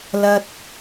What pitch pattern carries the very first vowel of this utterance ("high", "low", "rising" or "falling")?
high